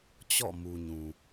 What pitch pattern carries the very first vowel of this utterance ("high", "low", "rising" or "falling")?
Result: falling